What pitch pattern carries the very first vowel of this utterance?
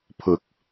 low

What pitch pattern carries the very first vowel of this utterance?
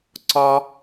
high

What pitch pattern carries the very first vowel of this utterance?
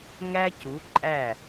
high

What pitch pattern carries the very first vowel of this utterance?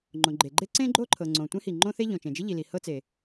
low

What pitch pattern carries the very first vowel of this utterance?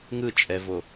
falling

